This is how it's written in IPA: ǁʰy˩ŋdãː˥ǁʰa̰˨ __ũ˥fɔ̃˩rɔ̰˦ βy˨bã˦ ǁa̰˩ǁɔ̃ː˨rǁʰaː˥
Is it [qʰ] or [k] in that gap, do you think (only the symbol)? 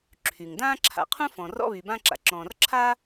qʰ